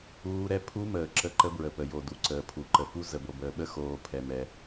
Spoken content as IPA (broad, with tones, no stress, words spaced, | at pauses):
uː˦˥ɾɛ˦˥ pʰu˦˥məː˨ ǁə˦˥ǃə˦˥bɹə˨pə˨ jo˨ du˨ǀəː˨ pʰu˨ǃə˨fu˦˥ zə˨bo˨bəː˨ɓə˦˥ xoː˨ pʰɛ˨mɛ˨